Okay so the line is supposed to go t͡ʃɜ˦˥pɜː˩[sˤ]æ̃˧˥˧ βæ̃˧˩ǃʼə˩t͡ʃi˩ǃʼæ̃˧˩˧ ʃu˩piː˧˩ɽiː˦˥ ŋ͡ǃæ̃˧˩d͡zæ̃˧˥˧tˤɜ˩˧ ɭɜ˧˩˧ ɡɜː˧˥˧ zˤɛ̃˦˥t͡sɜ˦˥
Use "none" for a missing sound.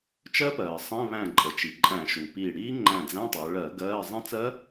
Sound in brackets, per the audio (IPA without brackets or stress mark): sˤ